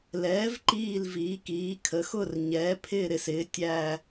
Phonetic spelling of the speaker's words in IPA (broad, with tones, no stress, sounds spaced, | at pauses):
l ɛː˩˥ v ǃ iː˧˩ l v iː˩˥ k iː˩˥ kʰ ə˩˥ x ʊ˥˩ r ɲ ɛː˩˥ pʰ ɪː˥˩ ɾ ɪ˥˩ s ɪː˩˥ tʲ æ˧˩